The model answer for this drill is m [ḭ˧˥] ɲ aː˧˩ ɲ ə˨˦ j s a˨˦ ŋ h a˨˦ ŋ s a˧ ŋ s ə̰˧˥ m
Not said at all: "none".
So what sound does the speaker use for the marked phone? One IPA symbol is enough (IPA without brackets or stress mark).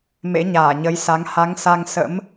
ḛ˧˥